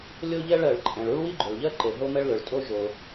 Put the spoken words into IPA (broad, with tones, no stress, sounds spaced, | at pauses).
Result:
lʲ o˥ ʎ ɛ˥ ɭ ɜ˩ ɭ ǃʼ ɛ̃˩ ɭ u˥ ɭ w i˥ ɡ͡ǃ ʏ˩ ɭ ʎ ɜ˥ ǃ e˩ ɦ o˥ m ɛ˥ ɭ l ʏ˩ ɭ tʼ o˥ ʒ o˩